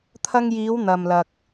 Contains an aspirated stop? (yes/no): yes